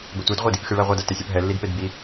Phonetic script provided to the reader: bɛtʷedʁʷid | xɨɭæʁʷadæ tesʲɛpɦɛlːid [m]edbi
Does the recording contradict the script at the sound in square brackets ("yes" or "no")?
yes